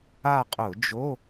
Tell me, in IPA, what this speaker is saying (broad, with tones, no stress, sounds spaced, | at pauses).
a˦˨ qʼ ʊ˧˩˧ d͡ʒ o˧˥˧